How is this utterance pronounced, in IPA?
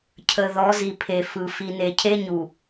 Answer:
cʰ ə˨ ð ɔ˨˦ z i˨ pʰ e˨ f ɯ˨ f i˨ n e˨ cʰ e˦ ɲ u˨

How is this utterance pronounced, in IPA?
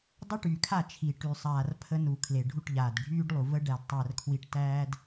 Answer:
dˤ ə˦ ʈ y˨ kʰ a˦˨ t͡ʃʰ i˨ ʈ y˨ sˤ aː˨ r pʰ ə˦ n u˨ kʰ l e˨ ɖʱ u˦˨ ʈ ʎ aː˨ d ɖʱ yː˦ ɖ lˠ u˨ v ə˦ ɖ æ˨ d tˤ æ˨ r kʰ w i˦ ʈ t æː˦ d

